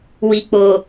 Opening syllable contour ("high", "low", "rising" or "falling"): low